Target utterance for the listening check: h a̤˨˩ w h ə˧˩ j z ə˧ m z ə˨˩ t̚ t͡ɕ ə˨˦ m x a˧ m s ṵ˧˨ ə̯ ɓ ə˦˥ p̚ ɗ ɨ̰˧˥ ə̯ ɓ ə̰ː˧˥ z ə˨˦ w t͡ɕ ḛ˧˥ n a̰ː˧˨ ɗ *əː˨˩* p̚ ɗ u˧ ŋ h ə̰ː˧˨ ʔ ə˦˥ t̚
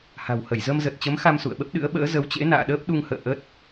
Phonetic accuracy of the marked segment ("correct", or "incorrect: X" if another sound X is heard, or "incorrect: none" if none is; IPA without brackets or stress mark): incorrect: əː˦˥